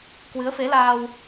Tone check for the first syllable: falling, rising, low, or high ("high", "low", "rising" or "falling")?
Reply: rising